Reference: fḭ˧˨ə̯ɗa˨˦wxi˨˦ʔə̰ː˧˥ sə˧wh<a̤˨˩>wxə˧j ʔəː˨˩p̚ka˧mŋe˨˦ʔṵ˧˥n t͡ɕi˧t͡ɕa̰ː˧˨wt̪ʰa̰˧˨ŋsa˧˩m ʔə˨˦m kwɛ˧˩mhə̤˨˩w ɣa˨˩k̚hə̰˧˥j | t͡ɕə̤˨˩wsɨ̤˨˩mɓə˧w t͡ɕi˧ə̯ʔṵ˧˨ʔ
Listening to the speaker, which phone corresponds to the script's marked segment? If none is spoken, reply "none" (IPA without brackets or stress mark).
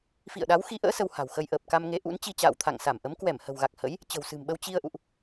a̤˨˩